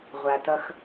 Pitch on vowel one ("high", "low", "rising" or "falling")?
low